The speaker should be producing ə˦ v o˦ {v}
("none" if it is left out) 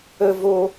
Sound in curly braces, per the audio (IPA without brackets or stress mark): none